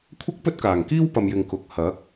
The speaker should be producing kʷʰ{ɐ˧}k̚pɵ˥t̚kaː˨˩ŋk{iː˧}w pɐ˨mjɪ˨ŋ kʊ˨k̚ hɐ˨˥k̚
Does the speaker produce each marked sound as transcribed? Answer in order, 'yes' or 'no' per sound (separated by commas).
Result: no, no